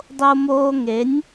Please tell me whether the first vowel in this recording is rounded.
yes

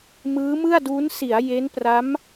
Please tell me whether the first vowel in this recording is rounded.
no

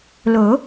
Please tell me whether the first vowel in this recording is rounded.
yes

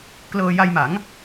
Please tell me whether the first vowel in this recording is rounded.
no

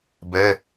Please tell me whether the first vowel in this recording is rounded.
no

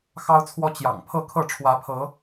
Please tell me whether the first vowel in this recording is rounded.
no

